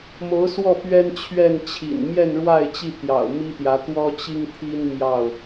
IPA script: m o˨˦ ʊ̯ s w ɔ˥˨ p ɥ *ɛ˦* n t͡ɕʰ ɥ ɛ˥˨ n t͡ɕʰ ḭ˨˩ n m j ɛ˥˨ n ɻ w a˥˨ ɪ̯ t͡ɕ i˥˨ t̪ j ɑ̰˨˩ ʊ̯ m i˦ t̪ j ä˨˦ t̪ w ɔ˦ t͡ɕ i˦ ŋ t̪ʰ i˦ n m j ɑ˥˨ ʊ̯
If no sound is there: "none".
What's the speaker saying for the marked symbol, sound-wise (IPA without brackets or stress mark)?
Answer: ɛ˦